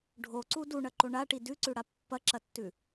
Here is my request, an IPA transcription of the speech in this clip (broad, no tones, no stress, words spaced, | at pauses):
ɖʱoǀu duɳɐǃo ɳaʈi dʉǀʉɽa pːɐǁɐtːʉ